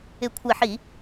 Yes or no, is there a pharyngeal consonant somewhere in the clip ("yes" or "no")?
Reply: yes